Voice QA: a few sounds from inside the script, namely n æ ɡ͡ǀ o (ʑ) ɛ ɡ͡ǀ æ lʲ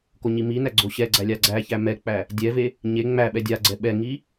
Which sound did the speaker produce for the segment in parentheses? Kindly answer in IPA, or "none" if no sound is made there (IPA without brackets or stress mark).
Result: ɕ